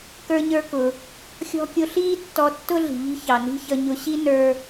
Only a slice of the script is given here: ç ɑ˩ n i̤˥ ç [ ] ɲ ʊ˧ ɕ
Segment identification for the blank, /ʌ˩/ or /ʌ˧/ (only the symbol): ʌ˧